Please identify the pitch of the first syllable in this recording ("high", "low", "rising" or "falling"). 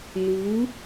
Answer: rising